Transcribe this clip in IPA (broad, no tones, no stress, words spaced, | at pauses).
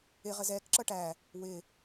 ɪ ʁəzɛk ǁʌʈæ | wɪ